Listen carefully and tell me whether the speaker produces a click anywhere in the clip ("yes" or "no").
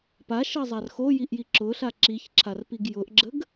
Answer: yes